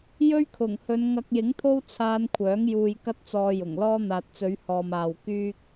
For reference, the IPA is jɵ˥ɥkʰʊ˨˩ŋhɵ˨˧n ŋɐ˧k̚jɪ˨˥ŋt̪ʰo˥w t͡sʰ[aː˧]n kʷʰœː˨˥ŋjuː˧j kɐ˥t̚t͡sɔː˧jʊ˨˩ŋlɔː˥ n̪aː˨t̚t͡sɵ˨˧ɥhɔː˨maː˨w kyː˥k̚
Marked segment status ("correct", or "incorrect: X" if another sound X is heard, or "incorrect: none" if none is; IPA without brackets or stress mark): correct